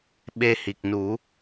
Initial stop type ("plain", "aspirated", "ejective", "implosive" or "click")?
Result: implosive